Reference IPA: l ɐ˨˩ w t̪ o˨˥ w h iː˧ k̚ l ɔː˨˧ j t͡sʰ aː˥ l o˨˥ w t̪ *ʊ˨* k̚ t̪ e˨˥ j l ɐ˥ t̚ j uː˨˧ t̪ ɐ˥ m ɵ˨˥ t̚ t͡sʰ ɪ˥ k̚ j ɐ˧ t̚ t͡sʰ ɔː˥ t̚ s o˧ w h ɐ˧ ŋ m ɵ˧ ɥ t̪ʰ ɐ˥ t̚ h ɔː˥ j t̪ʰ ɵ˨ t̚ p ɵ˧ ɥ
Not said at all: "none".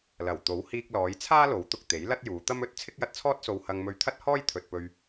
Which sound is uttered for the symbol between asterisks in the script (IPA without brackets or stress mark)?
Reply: ʊ˨